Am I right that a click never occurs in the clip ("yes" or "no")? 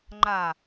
no